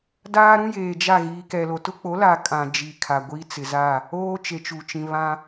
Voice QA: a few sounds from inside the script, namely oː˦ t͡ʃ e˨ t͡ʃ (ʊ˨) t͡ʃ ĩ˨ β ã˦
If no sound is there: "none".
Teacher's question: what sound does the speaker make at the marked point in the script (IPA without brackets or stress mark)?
u˨